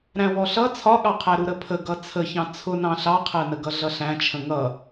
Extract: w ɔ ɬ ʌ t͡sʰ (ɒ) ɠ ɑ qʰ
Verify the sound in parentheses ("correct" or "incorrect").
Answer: correct